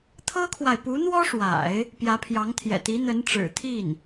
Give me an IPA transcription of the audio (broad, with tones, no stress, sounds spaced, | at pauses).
t̪ʰ ɤ˥ kʰ w a˨ ɪ̯ p u˧˥ n̪ w ɔ˥ ʂ w a̰˨˩˦ ɪ̯ | p j ä˧˥ pʰ j ɑ˧˥ ŋ t̪ʰ j ɛ̰˨˩ t̪ i˧˥ n̪ ə˧˥ n ʈ͡ʂ ɻ̩˨˩ t̪ʰ i˥˩ n